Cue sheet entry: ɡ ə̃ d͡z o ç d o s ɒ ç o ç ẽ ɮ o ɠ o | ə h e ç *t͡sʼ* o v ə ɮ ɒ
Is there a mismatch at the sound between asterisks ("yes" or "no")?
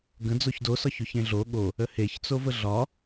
yes